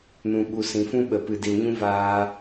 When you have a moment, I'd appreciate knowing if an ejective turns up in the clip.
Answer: no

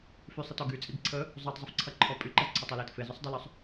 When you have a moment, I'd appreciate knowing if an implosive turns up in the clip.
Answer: no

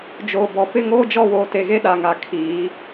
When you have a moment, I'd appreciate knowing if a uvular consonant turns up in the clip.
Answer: no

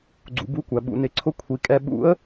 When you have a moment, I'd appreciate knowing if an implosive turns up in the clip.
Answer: yes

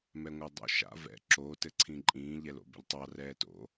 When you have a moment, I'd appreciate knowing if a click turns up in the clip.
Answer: yes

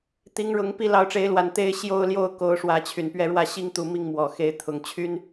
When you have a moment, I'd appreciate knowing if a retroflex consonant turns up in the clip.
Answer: yes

